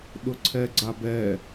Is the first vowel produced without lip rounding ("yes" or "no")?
no